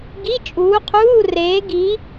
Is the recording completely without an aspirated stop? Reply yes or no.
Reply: no